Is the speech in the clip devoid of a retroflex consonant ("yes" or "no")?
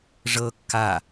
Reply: no